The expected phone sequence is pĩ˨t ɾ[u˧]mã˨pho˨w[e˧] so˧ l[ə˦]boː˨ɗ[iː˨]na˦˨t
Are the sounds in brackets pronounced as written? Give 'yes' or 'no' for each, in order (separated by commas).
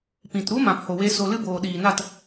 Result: no, yes, no, yes